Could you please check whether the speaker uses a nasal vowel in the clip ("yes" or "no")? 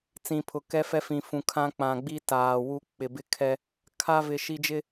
yes